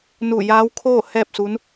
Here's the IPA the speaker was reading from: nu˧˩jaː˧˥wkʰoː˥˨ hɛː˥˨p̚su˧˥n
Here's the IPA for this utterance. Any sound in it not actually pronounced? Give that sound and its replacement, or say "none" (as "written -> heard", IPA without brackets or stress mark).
none